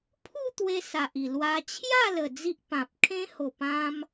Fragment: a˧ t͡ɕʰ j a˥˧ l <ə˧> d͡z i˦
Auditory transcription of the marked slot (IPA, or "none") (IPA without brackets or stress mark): ə˨˩